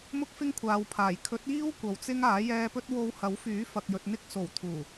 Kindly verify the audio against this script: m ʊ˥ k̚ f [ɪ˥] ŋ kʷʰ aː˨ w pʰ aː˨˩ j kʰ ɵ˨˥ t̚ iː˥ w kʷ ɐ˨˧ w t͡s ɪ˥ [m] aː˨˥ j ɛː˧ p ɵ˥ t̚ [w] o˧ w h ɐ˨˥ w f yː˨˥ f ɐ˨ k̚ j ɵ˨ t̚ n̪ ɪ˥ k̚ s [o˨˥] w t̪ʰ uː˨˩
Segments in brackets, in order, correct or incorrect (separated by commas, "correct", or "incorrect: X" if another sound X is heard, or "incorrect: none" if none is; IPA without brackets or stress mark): correct, incorrect: ŋ, correct, incorrect: o˨˩